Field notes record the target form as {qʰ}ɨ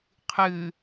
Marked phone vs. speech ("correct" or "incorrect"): correct